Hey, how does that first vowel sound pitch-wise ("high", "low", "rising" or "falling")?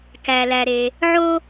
low